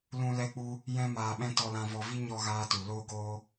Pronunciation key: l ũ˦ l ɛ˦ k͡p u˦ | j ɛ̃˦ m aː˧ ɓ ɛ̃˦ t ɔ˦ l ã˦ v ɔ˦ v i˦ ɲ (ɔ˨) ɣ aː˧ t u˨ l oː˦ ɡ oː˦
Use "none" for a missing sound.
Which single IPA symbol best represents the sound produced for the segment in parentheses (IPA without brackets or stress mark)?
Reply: ɔ˦